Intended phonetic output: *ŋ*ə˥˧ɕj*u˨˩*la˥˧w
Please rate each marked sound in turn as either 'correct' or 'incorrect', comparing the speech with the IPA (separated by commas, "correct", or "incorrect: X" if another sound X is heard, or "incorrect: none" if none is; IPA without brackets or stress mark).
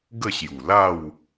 incorrect: ɡ, correct